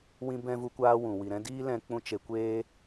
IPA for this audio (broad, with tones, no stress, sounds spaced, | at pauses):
w ĩ˧ b ɛ̃˧ v u˦ kʷ aː˦ w ũ˨ w i˨ ɾ ɛ̃˦ d iː˦ l ɛ̃˧ k͡p ũ˧ t͡ʃ e˧ kʷ eː˦